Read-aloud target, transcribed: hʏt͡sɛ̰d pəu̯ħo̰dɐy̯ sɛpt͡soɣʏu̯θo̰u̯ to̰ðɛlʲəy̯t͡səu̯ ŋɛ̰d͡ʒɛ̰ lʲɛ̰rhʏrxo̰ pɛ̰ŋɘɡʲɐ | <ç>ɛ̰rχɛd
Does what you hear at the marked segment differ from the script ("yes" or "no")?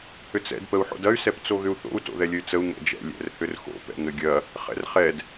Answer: yes